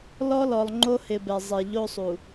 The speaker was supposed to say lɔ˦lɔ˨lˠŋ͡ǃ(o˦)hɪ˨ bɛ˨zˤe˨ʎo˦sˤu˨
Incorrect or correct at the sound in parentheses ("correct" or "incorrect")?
correct